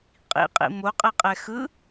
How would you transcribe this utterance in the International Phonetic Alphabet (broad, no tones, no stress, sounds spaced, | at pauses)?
qʼ ḭ qʼ ḭ m o qʼ ɛ qʼ ɛ x ɯ